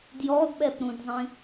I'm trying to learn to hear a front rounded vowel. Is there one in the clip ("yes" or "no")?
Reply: no